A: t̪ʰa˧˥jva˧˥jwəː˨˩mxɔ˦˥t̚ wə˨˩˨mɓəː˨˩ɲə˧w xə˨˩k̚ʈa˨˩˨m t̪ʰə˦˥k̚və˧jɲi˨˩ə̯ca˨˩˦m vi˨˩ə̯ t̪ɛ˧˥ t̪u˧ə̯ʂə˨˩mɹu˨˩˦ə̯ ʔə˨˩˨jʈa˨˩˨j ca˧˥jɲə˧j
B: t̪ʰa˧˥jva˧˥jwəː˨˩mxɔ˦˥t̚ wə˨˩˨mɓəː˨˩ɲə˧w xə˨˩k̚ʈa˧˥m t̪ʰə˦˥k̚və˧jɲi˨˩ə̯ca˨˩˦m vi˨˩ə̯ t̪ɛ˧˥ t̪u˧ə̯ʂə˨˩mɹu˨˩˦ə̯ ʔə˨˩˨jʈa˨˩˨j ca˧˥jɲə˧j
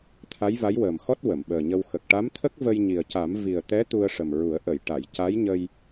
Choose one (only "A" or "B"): B